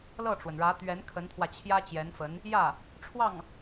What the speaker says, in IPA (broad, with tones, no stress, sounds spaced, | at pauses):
l ɤ˥˩ ʈ͡ʂ w ə˩ n ɻ ä˧˥ t̪ ɥ ɛ˧˥ n kʰ ə˧˥ n t̪ʰ w ä˧ t͡ɕʰ j ä˥ t͡ɕ j ɛ˧˥ n f ə˧˥ n | j ä˥˩ | ʈ͡ʂʰ w ɑ˥˩ ŋ